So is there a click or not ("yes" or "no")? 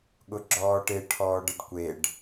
yes